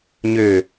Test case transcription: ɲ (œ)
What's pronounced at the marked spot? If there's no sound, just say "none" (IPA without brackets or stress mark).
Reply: ø